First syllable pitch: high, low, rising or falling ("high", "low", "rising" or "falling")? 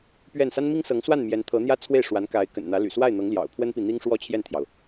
falling